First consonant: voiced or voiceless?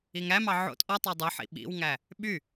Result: voiced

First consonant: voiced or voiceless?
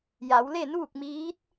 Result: voiced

